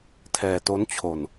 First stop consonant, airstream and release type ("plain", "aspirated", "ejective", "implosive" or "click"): aspirated